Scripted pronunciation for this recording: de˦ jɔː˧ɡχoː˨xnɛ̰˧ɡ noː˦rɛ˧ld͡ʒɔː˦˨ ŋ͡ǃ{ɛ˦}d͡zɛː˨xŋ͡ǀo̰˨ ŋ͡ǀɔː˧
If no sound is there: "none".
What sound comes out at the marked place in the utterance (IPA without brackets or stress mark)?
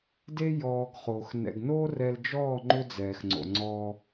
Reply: ʏ˦